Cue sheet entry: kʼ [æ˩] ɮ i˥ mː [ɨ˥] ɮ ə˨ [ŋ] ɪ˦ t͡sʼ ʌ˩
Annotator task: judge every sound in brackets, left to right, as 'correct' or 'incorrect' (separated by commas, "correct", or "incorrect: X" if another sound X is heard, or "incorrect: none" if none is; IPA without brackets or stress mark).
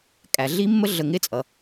correct, incorrect: ə˥, correct